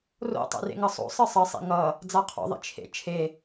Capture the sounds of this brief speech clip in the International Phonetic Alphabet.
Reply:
r o̰ tˤ ḛ r ḛ ŋ ʌ sˤ o̰ sˤ ɨ sˤ ɘ sˤ ḭ ŋ ʌ | d͡z a qʰ o̰ ðˤ ḭ t͡ʃʰ ḛ t͡ʃʰ e

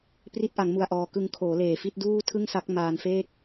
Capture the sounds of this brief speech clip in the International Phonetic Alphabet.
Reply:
p r i˦˥ t̚ ʔ a˩˦ ŋ m u˨˩ a̯ ʔ ɔː˨˩ k ɯ˧ ŋ kʰ oː˩˦ l eː˨˩ f i˦˥ t̚ d uː˥˩ tʰ ɯ˥˩ ŋ s a˦˥ k̚ m aː˧ n f eː˥˩ k̚

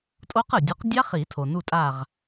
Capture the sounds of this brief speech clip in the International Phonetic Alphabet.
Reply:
tʼ o˦˥ q ɯ˩ dʲ u˨˥ q dʲ a˦˥ χ i˨˩˦ tʰ o˩ n u˦˨ tʼ a˦˨ ʁ

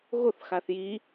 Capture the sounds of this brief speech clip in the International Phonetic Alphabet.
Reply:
ɣ o θ x a θ j i

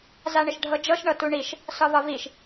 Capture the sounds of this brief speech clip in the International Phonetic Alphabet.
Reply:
z a ɳ ɪ ʃ ɖʱ ɤ d͡ʒ ɤ ʃ ɳ ɤ t u ɳ i ʃ | s ɒ v ɒ v i ʃ

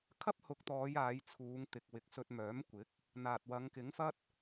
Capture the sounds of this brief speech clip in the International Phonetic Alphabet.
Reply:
kʰ ɐ˥ p̚ h ʊ˨˥ k̚ t̪ ɔː˨˧ j aː˨˧ j t͡sʰ uː˨˧ ŋ t̪ ɪ˨ k̚ w ɪ˨ k̚ s ɵ˧ t̚ m œː˨˥ m kʷ ɪ˨˥ k̚ | n̪ aː˨ t̚ w ɐ˨˧ ŋ k ɪ˨˥ ŋ f ɐ˥ t̚

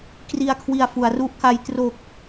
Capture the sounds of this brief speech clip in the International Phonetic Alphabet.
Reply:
k r i˧ a̯ kʰ w i˨˩ a̯ f u˩˦ a̯ r u˥˩ ʔ k a˦˥ j t r o˨˩ k̚

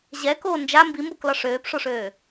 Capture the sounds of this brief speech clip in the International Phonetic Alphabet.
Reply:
ʑ ɛ k oː n d͡ʒ a m b i m b o k l ɒ ʂ øː p ʂ o ʂ øː

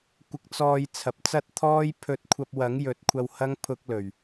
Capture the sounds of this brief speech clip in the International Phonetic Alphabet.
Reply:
kʷ ɪ˧ k̚ t͡s ɔː˧ j t͡sʰ ɐ˨ p̚ t͡s ɐ˥ t̚ t̪ʰ ɔː˥ j pʰ ɵ˧ t̚ kʷʰ ɐ˧ p̚ w ɐ˨˥ ŋ j ɵ˨˥ t̚ kʷʰ ɐ˧ w h ɐ˥ ŋ pʰ ʊ˧ k̚ l ɵ˨˩ ɥ

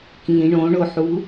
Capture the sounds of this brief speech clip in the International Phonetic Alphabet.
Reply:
k ĩ ɳ õ ɳ o ħ u

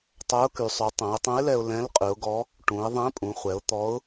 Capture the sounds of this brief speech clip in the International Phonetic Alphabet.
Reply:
tˤ œ˧˥ ʊ̯ k y˩˧ sˤ ʉ˩˧ tˤ œ̃˩˧ ɪ̯ tˤ œ̃˧˥ ɪ̯ l ɛ˧ ʊ̯ l ɛ̃˧˥ l qʼ ʉ˩˧ ʊ̯ ɡ ɔ˧˥ | ʈ ũ˩˧ ɪ̯ ðˤ ɛ̃˧˥ pʼ ũ˩˧ χʷ ɛ˩˧ ʊ̯ t̪ ɔ˧˥ ʊ̯

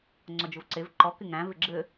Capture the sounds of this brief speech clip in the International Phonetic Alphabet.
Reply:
ŋ͡ǀ ɔ d͡ʒ ʊ v ǀ e v ǃ ɔ k ɪ ŋ æ̃ v ɪ ɡ͡ǁ ɘ

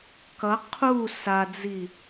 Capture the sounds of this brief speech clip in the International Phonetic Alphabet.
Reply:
k ʌ qʰ u s a d͡z i

